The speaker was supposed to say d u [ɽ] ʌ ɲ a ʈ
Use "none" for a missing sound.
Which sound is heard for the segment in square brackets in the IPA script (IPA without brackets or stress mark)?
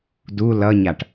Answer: l